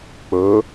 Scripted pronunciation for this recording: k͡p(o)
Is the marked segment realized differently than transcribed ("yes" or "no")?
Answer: yes